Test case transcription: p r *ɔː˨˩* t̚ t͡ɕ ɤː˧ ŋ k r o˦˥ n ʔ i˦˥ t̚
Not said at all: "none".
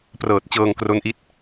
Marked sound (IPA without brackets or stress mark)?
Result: ɤː˨˩